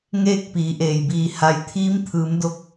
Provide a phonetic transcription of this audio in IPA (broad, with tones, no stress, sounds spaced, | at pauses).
ŋ eː˥˨ k̚ p iː˩˧ ʔ eː˩ j b iː˧˩ h a˩ j t̪ʰ iː˧˥ m t̪ʰ ɯː˩˧ m d o˧ k̚